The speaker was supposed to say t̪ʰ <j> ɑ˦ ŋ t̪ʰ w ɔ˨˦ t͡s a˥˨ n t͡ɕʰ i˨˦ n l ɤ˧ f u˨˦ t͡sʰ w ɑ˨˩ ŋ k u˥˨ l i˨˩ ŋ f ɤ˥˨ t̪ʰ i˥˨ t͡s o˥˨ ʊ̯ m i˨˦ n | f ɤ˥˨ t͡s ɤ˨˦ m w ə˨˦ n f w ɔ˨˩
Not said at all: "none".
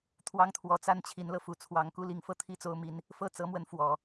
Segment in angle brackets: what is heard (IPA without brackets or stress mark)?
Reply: w